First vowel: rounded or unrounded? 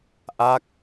unrounded